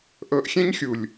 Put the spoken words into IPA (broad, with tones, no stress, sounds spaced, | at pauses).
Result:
ʔ ɤ˨ ʔ xʲ ɛ̃˦ ɲ xʲ u˨ lʲ